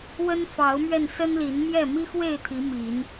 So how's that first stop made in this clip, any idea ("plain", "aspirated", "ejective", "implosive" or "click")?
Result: aspirated